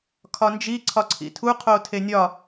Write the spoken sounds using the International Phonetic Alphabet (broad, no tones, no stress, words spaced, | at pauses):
kʰɒnd͡ʒi ǀʰɒǀʰḭtʰu qʰotʰenʲɒ